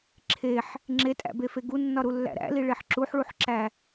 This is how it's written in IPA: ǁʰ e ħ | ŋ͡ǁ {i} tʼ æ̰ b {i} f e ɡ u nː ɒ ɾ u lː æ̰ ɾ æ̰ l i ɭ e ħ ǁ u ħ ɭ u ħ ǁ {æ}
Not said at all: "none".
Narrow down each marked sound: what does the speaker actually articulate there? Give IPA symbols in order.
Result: e, e, æ

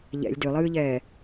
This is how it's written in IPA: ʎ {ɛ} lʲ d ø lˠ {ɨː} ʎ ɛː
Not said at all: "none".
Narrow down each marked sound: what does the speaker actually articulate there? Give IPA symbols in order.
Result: ɛ̰, ɨː

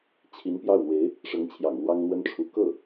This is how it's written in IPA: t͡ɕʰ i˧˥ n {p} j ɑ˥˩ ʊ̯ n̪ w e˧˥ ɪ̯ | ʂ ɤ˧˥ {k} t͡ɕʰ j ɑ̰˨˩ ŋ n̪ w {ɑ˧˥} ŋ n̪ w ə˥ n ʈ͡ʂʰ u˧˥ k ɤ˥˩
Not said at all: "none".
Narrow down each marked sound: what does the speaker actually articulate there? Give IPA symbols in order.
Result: p, ŋ, ɑ˥

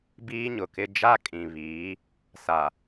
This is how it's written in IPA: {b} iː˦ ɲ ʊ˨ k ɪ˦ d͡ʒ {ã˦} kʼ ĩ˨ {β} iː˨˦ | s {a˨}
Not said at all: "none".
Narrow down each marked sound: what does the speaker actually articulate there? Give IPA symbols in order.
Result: b, a˦, β, a˨

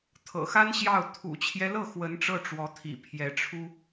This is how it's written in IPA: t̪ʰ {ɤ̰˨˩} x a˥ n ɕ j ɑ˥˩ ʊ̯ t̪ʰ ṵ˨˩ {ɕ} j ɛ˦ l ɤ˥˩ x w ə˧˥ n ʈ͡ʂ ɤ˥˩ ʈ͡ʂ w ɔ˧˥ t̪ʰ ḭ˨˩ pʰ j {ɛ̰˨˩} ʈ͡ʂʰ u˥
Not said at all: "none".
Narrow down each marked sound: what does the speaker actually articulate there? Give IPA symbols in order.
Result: ɤ̰˨˩, t͡ɕʰ, ɛ˧˥

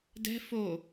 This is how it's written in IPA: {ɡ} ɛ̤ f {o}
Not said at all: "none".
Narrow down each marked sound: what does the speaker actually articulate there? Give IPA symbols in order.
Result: d, o

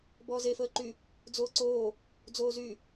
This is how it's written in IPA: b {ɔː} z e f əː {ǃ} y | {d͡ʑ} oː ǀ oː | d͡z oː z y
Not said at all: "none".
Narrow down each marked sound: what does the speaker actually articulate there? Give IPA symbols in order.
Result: ɔː, ǃ, d͡z

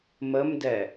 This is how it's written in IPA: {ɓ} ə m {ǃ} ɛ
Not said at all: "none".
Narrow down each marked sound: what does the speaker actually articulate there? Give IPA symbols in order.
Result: m, d

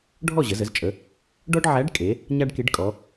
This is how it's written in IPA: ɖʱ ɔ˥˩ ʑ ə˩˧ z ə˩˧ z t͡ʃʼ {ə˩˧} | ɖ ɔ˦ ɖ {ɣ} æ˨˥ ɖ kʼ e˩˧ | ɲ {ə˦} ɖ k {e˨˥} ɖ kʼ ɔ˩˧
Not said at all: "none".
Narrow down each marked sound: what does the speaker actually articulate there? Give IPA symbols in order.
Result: ə˩˧, ʕ, a˦, e˨˥

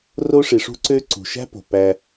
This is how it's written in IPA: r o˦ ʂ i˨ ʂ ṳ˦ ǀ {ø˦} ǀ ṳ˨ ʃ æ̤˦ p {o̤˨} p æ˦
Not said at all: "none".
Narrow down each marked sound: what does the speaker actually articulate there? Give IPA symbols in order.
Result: ø˦, o̤˨

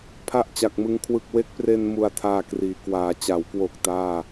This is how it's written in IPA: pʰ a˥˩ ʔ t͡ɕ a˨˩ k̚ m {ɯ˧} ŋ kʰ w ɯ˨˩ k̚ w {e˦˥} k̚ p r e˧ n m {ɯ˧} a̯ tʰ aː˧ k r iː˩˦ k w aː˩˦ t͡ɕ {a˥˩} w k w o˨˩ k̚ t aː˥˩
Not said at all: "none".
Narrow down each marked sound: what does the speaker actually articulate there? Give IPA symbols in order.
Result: ɯ˧, e˦˥, u˧, a˩˦

